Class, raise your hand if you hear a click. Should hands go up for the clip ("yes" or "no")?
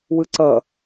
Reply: yes